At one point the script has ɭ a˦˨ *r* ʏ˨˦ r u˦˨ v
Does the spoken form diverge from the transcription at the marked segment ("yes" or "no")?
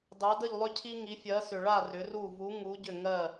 no